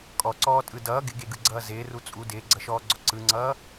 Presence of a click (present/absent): present